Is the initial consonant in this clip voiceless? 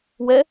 no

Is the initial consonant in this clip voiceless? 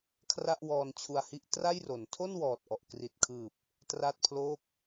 yes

